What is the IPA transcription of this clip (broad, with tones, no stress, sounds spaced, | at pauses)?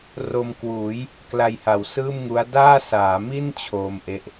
r o˧ m k w uː˩˦ j | k l a˧ j h a˨˩ w s ɯː˥˩ m ŋ u˦˥ a̯ d aː˥˩ s aː˩˦ m i˥˩ n t͡ɕʰ oː˧ m ʔ e˦˥ ʔ